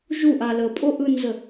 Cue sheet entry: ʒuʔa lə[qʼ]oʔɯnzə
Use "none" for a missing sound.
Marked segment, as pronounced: pʼ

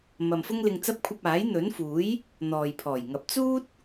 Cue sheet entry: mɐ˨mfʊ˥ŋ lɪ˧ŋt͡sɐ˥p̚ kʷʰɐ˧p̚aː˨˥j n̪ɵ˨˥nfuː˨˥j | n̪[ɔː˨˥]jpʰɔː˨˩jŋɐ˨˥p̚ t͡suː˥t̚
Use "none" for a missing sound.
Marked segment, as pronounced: ɔː˨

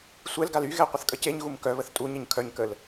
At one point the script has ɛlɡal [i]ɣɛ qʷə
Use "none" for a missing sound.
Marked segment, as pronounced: y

